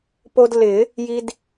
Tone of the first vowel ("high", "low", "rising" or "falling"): high